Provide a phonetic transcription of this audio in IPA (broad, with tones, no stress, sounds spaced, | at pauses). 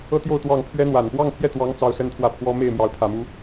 ɤ˥ t̪ j o˥˧ ʊ̯ t̪ w ɑ˥˩ ŋ pʰ ɥ ɛ˥ n̪ w a˨˩ n p w ɑ˥˧ ŋ pʰ j ɛ˥˩ t̪ w ɑ˧˥ ŋ t͡s ɑ˥ ʊ̯ s ə˥ n t̪ʰ w ä˥˩ pʰ w ɔ˥ m e˥˩ ɪ̯ m j ɑ˧˥ ʊ̯ t̪ʰ ä˨˩ m u˧˥